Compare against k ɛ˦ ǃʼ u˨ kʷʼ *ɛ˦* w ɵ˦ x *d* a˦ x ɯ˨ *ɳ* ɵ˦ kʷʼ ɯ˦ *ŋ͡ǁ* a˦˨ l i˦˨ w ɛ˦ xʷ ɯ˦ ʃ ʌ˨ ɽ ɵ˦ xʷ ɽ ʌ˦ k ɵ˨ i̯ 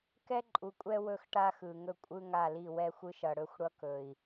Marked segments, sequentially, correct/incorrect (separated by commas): correct, incorrect, incorrect, incorrect